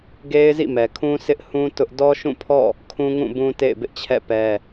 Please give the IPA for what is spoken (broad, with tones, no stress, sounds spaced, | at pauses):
ɡ e˦ ɪ̯ z ḭ˦˨ m ɛ˨ kʰ ũ˦ sʰ ɪ˦ ʔ h ũ˦ t ʊ˦ ʔ d ɔ˦ ʃ ũ˦˨ pʰ ɔ̰˦˨ | kʰ ũ˦ ŋ ũ˦˨ b ũ˦ t ḛ˦˨ ɪ̯ b ɪ˦ ʔ t͡ɕʰ ɛ̰˦˨ p ɛ˦